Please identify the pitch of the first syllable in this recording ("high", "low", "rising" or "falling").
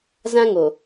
high